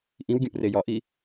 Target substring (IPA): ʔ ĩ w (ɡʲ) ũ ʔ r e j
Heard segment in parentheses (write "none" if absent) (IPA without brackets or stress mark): ɡʲ